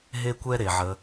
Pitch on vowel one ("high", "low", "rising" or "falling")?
high